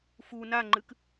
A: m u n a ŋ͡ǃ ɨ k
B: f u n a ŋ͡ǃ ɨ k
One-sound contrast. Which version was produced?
B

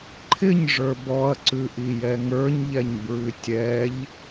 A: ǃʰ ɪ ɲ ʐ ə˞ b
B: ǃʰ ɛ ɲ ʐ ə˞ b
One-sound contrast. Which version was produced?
A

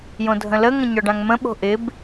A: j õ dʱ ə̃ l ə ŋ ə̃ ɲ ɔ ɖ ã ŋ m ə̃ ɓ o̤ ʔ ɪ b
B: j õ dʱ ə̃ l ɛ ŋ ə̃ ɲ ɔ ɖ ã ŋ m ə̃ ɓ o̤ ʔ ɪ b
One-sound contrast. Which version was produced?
A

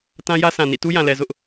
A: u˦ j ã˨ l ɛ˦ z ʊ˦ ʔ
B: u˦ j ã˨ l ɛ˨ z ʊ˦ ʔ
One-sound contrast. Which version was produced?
B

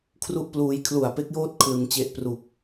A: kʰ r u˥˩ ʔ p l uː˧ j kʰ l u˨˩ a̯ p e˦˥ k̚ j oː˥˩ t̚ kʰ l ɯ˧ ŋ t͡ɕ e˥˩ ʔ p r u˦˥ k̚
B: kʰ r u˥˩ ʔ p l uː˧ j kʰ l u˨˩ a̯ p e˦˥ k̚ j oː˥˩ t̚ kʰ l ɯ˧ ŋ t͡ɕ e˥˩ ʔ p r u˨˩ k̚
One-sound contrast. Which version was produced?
B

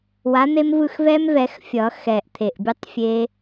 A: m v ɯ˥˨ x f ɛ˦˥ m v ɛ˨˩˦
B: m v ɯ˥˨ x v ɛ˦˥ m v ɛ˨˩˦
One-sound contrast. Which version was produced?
B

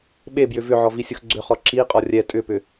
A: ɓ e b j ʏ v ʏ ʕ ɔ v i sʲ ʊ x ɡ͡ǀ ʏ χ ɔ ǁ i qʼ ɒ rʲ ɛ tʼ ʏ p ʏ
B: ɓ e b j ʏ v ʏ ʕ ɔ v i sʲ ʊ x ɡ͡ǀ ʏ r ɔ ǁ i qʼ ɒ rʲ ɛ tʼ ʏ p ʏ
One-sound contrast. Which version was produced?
A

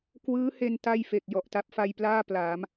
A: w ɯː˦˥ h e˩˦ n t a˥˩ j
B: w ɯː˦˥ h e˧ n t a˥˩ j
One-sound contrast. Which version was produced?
B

